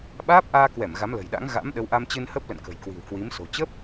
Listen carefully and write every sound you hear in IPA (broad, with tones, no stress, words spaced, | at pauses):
ɓaː˦˥p̚ʔaː˧kwɛ˧˩m ɣa˨˦mlə̤˨˩jɗa̰˧˥ŋ ɣa̰˧˥mɗə˨˦wʔa˧mt͡ɕɨ˧n hə˦˥p̚ lə̰˧˨nkə̤˨˩jkwi̤˨˩w kwi˨˦mso̤˨˩ t͡ɕə˦˥p̚